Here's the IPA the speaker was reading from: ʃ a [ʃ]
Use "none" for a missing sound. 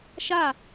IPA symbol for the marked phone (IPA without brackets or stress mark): none